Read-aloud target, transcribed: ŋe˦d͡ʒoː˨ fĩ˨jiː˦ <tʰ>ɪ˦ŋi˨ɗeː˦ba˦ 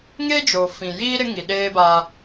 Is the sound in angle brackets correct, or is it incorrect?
incorrect: ɾ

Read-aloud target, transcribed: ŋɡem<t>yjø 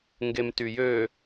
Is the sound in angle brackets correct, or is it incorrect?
correct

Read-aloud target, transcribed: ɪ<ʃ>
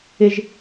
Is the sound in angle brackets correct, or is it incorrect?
incorrect: ʒ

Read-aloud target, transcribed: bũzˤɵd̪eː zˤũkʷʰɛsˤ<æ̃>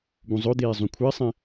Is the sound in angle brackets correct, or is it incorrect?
incorrect: ɛ̃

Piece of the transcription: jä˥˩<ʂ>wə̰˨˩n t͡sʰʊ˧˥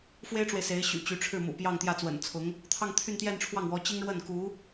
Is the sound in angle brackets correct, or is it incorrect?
incorrect: t͡s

